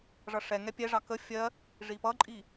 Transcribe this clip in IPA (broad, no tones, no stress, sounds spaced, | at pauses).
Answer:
ʐ ʌ ʂ ɛ ŋ ɛ pʲ ɛ ʐ ɑ k ə fʲ ɜ | ʐ i p ʌ ǃʼ i